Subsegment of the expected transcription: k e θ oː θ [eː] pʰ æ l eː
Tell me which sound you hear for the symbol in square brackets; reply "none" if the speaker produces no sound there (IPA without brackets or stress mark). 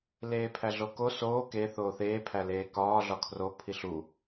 eː